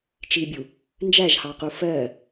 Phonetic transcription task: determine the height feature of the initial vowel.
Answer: high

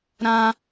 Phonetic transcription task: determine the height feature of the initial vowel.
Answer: low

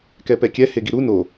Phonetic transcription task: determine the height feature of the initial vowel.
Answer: mid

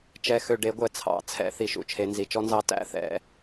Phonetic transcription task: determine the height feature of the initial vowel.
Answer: mid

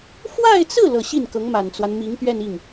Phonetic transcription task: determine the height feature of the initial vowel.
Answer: low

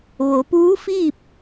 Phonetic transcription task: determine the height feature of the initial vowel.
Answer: mid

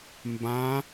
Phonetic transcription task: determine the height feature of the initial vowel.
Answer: low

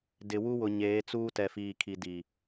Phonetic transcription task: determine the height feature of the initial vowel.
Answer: high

